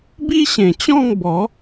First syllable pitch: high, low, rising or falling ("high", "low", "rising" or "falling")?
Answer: high